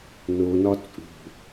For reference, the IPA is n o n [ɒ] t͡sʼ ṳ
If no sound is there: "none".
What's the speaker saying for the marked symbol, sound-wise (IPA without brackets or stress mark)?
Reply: ɒ